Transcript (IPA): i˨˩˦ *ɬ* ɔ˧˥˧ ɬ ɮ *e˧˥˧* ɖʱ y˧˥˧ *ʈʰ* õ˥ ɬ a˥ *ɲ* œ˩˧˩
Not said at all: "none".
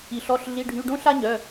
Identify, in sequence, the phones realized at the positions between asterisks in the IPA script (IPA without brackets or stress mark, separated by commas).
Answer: ɬ, i˧˥˧, ɖ, ɲ